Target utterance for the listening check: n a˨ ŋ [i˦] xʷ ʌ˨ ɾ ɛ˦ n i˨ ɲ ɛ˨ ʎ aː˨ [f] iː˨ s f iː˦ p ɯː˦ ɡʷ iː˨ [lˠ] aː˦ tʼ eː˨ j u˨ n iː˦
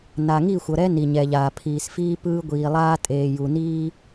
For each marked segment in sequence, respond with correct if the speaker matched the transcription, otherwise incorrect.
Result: incorrect, incorrect, correct

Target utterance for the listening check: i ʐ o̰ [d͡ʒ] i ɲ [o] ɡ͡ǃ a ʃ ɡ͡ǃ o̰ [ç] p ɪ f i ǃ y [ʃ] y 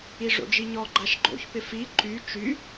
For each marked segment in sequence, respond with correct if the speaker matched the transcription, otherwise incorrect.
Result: correct, incorrect, correct, incorrect

